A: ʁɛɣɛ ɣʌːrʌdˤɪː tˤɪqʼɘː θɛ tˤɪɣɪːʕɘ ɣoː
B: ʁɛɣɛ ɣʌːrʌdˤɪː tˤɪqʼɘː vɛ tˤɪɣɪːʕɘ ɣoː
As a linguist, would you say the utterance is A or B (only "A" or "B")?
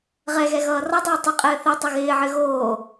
A